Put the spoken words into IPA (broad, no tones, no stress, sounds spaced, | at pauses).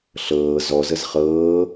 ɬ ɤː z ɔ z ə z χ ɤː